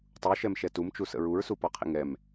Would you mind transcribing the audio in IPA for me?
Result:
tˤ u ʃ ɛ m ʃ ɛ t u m t͡ʃ u s ə̰ ɹ u ɹ s u p ɔ qʰ ḭ ŋ ɛ m

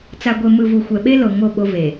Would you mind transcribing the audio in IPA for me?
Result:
t͡s a˨ ɡʷ e˨ m ɯ˨ v u˨ xʷ ɛ˨ ɓ e˦ l o˨ ŋ o˦˨ ɓ o˦ v e˨

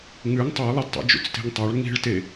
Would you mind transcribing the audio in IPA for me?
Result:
ŋ ʉ ŋ tˤ ɵ j lˠ ɨ d tˤ ṵ d͡ʒ ṵ t͡s t e̤ ŋ tˤ a ɭ ŋ i̤ ɭ t e

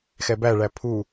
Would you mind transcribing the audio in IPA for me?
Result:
x ɛ b æ ɭ æ pʰ u

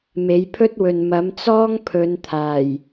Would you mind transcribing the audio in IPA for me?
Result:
m e˨˥ j pʰ ɵ˥ t̚ w ɵ˨ n m ɐ˨˥ m t͡s ɔː˥ ŋ pʰ ɵ˨˧ n t̪ʰ aː˨˩ j

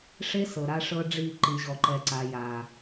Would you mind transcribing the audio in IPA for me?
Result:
ʂ e˦ s ɤ˨ ɾ a˦ ʂ ɤ˦ ɖ͡ʐ i˦˨ ǃ i˨ ʑ ɔ˨ ǃ ɛ˨ ǀ a˨ j a˨

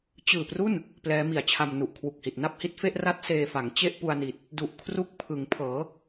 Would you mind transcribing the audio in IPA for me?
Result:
t͡ɕ ɯː˨˩ p r u˥˩ n | p l ɛː˦˥ m i˨˩ a̯ t͡ɕʰ a˧ m n u˨˩ ʔ kʰ w u˨˩ k̚ h i˨˩ t̚ n a˥˩ p̚ h i˦˥ t̚ f e˥˩ ʔ r a˥˩ t̚ s eː˧ f a˩˦ ŋ t͡ɕ e˥˩ ʔ p u˧ a̯ n i˨˩ t̚ | d u˨˩ ʔ kʰ r u˦˥ k̚ pʰ ɯ˩˦ ŋ pʰ ɤː˩˦

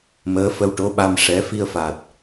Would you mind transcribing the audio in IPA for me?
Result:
m əː˧˥ f ə˧ w ʈ o˧˥ ɓ a˧ m ʂ ɛ˧˥ f i˧ ə̯ f a˨˩ t̚

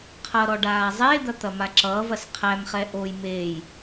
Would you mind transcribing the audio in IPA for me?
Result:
qʰ ʌ ɾ ɔ ɖ aː zˤ eː d̪ ɐ t̪ ɐ m a ǁ ʌː v ɐ s qʰ æ m χ ɛ ʔ o j m eː j

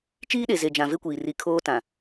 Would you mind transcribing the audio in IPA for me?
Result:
t͡ʃ iː˦ ɗ e˨ z e˨ d͡ʒ ã˨ v e˦ kʷ iː˨ r i˨˦ kʰ oː˦ t ã˨

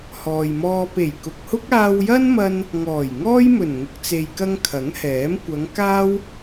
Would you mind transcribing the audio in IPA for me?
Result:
h ɔː˨ j m ɔː˧ p e˨˩ j k ʊ˨ k̚ h ʊ˥ k̚ aː˧ w j ɐ˥ n m ɐ˧ n | ŋ ɔː˨˩ j ŋ ɔː˥ j m ɵ˨˩ n ŋ ʊ˨ k̚ t͡s e˨ j k ɐ˧ ŋ kʰ ɐ˨˥ ŋ h ɛː˨˥ m kʷ ɐ˨˧ ŋ k aː˥ w

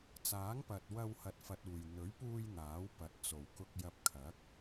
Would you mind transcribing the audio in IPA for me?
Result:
t͡s aː˨˥ ŋ p ɐ˨ t̚ w ɐ˧ w h ɐ˨ t̚ f ɐ˨ t̚ uː˨˩ j n̪ ɵ˨˥ ɥ p uː˧ j n̪ aː˨˥ w p ɐ˨ t̚ t͡s o˨˩ w k ʊ˧ k̚ j ɐ˧ p̚ kʰ ɐ˨˥ k̚

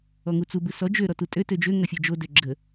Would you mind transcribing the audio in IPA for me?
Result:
ɔ ŋ u t͡s u b ɯ s ɔ d͡ʒ ø ɾ ɔ t u tʼ ø t ø d͡ʒ ø ŋ ɐ fʲ ɯ d͡ʒ o d ø ɡ͡ǁ ə

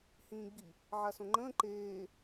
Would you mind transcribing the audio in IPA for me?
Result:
h ĩː ɡ͡b i | ʕ a s õ ŋ͡ǃ ə̃ː ǃ eː

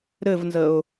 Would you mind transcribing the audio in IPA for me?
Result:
ɾ ɘ v n z ə ʊ̯

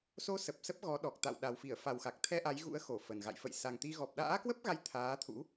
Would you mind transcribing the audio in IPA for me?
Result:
s o˧ s ə˨˩ p̚ s ə˦˥ p̚ ɣ ɔ˨˦ ɗ ɔ˨˩ k̚ t̪ a̰˧˨ w ɗ a˨˩ w f i˧˩ ə̯ f a˨˩ w x a˨˩ k̚ t̪ʰ ɛ˧ ʔ a˨˦ j ɣ ṵ˧˥ ə̯ x o˧˩ f ə˨˩ n ɣ a̰˧˨ j f ə̰˧˨ j s a˨˩ ŋ t̪ i˧ ɣ ɔ˨˩ p̚ ɗ a̰ː˧˥ k w ə˦˥ p̚ ɣ a˨˦ j t̪ʰ aː˨˦ t̪ʰ ṵ˧˥

